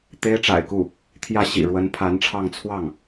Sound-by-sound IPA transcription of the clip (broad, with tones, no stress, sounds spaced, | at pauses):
t̪ e˥ ɪ̯ ʈ͡ʂ a̰˨˩ ɪ̯ k u˥˩ | t̪ʰ j ä˥˩ ɕ ḭ˨˩ ɻ w ə˧˥ n pʰ a˧˥ n ʈ͡ʂʰ ɑ˥˧ ŋ t͡sʰ w ɑ˥˩ ŋ